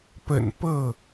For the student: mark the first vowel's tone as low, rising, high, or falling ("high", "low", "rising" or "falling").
low